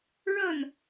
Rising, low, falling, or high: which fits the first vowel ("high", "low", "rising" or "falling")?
falling